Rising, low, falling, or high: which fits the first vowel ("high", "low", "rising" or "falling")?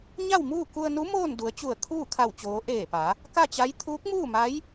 falling